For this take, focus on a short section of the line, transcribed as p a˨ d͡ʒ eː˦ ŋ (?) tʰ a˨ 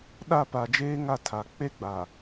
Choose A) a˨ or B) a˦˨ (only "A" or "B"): B